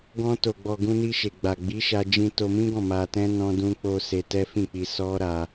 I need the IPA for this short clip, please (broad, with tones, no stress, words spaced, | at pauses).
ɡɔ̃˧to˨ɡ͡bɔ˨ ɡũ˧ni˧ ʃe˨ɡ͡ba˨ ɡ͡bi˨˦ʃa˧d͡ʒĩ˧ to˧mĩ˦ɡɔ̃˦˨ ma˧tɛ̃˦ nɔ̃˧dũ˧k͡po˧ se˧tɛ˦fĩ˦˨k͡pi˧ sɔ˦ɾa˧